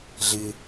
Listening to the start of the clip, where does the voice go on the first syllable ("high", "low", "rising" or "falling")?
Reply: low